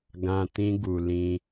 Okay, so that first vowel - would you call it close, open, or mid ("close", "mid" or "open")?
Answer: open